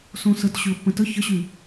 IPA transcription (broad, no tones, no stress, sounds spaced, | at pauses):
s õ s ə t ɕ y ə̯ pː ə̃ t ə ç ə ɕ y